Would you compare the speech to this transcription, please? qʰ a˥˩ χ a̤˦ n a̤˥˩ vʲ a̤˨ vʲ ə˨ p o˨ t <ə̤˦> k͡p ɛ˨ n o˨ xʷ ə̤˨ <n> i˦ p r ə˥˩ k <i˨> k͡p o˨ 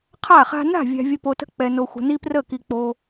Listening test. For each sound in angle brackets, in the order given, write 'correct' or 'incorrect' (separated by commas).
correct, correct, correct